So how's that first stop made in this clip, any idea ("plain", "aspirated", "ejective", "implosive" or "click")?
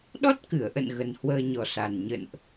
implosive